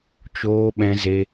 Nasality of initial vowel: oral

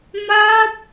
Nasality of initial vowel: oral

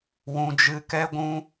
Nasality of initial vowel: nasal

